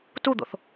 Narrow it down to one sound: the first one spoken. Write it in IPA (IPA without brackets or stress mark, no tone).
t